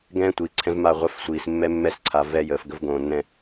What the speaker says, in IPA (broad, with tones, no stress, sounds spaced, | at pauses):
ɡ ɛ̃ː˦ tʷ iː˨ ǀʰ ɛ̃˦ v m a˦˨ ʁʷ ɛ˦ f sʷ iː˨ s mː ɛ˦ mː ɛ˦ s ǀʰ a˨ v ɛ˦ j əː˨ f ɡ ə˦ v ɡ õː˨ nː ɛ̃˦